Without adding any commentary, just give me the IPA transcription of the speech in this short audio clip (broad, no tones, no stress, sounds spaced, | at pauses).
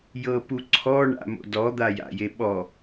j ɤ p u ǀʰ ɔ ɳ a̰ m o̰ d ɔ d̪ a j a̰ j e ɓ ɔ